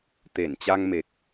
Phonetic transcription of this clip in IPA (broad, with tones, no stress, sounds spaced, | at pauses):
t̪ e˧˩ n t͡ɕ a˧ ŋ m e˨˩ k̚